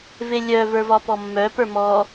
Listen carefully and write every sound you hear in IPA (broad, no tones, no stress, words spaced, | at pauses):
velʲœvə˞ vɒpɔmːœpə˞ mɔ